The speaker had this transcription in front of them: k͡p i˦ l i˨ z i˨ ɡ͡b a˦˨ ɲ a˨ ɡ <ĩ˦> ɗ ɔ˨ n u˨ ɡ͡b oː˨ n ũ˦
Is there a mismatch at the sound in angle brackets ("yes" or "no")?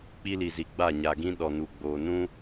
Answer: no